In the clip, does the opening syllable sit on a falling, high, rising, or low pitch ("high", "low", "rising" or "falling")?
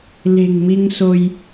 low